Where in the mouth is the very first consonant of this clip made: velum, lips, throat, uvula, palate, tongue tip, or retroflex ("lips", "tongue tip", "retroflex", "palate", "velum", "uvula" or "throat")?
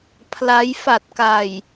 lips